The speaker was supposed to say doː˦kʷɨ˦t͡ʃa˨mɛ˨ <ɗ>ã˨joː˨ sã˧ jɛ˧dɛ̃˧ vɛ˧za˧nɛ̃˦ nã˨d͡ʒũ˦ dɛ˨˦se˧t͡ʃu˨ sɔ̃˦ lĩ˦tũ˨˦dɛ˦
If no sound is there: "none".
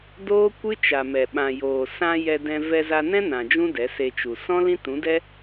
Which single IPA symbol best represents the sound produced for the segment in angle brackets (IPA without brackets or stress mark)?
ɓ